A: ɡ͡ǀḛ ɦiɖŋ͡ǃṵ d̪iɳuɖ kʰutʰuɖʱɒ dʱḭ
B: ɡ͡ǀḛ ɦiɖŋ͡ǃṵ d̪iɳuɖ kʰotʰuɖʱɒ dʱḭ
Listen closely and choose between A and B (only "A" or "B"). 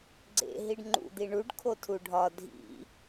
B